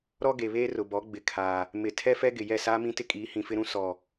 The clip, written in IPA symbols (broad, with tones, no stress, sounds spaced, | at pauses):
ɾ ɔ˦ ɡ e˨ β eː˦ r ʊ˨ b ɔ˨˦ ɡ͡b ɪ˨ kʰ aː˨ | m ɪ˨ tʰ ɛ˦ f ɛ˦ ɡ ɪ˨ j ɛ˦˨ s aː˦ m ĩ˦ t ɪ˦ kʼ iː˨˦ h ĩ˨ f ɪ˦ ɾ ũ˦ s ɔ˨